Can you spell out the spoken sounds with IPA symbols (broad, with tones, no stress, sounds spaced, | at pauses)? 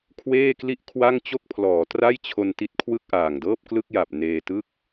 kʰ w eː˥˩ k l i˥˩ ʔ kʰ w a˥˩ ŋ t͡ɕ o˥˩ k̚ pʰ l ɔː˩˦ t r a˥˩ j t͡ɕʰ o˧ n t i˦˥ t̚ kʰ w ɯ˥˩ k̚ ʔ aː˨˩ ŋ d ɤː˥˩ p̚ k l ɯ˥˩ k̚ j a˨˩ p̚ n eː˧ t ɯ˥˩ k̚